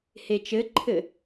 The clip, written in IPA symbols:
het͡ʃɘǃʰɘ

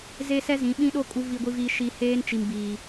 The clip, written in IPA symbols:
ze˦ sɛ˦zĩ˨˦ɓĩ˦ɗo˦ kʼu˨ vi˨ɡʷi˨viː˨ ʃi˨ heː˦nt͡ʃi˨mbi˨

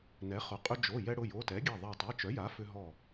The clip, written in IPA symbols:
nɛ˩˥χʊ˩˧˩ qʼʏ˧d͡ʒo˩˧˩ jɛ˧ɽʊ˩˧˩jo˩˧˩tɛ˩˥ ɡʲɛ˧˩ðˤa˧˩ tˤɛ˩˧˩t͡ʃœ˩˥ja˩˥ fʏ˧ɦɔ˧˩

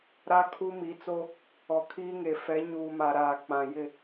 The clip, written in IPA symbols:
ɾa˦ kʰu˦mi˨˦t͡so˦ | ɔ˨kʰiː˦ŋe˨ fɛ˨˦ɲuː˨ ma˨ ɾaː˨k͡pã˨ jɪ˦˨

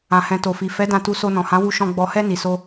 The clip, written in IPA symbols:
ã˨hɛ̃˨to˨fi˨ fɛ˨˦ dã˧tu˧so˧ nɔ̃˨hã˨˦wu˧ ʃɔ̃˧ ɡ͡bɔ˧hɛ˦ ni˧so˦

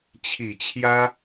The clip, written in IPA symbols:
t͡ɕʰi˨˩t͡ɕʰjä˥

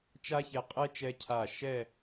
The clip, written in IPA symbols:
t͡ʃa˥çɛ˧qʼɛ˥ t͡ʃɛ˧cʰa˧˩ ʃɛ˥˧

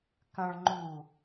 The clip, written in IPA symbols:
kɐ̃ɭ ŋ͡ǃu

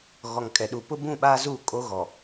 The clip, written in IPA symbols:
ɣɔ˨ŋkʼɛ˨ɗu˨ pʊ˦ bũ˦˨ɓaː˦zuː˦˨kʼo˦ ɣɔ˨

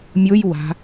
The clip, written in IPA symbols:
mʲoj wa̤

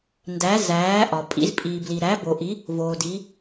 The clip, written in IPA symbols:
ndæ˨˦ zæː˨˦ ʔɒ˨pʼḭ˨˦z pʼiː˨bli˨ ɾæ˨˦bo˨ʔi˨˦ | voː˨di˨˦

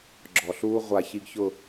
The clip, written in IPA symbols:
ɡ͡ǁɔ˨ɬuː˦ ʁʷa˨ çi˦ɡçʊ˦˨

